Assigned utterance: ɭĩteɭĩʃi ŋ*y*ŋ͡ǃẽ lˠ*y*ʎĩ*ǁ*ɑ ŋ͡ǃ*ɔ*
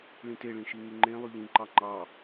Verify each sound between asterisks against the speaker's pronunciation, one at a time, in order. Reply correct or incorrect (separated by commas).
correct, correct, incorrect, incorrect